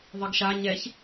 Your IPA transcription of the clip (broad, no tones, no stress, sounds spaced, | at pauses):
ðˤ i ɡ ʃ a ɲ ɛ ç